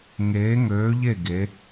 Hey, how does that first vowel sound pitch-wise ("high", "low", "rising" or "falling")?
rising